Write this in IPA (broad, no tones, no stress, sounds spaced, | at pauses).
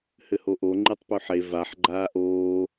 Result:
h ɘ h o ʔ o ŋ͡ǃ i tˤ p ʉ ħ e v a ħ ɡ͡ǃ aː ʔ oː